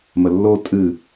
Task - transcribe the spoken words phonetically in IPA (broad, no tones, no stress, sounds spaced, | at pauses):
m ə lː o tʼ ɨ